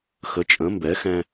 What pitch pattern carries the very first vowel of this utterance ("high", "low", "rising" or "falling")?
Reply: rising